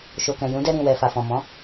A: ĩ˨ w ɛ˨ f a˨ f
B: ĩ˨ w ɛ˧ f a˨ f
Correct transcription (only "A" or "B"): A